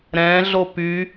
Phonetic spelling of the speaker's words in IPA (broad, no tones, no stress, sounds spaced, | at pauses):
ɾ ɛ̃ ɮ o p y